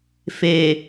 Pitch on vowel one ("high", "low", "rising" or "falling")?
low